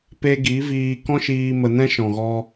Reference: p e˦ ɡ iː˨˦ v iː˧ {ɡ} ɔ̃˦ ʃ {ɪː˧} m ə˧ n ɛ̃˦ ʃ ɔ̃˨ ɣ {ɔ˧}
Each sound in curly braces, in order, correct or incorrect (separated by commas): incorrect, incorrect, correct